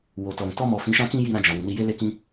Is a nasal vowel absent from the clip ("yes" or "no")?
no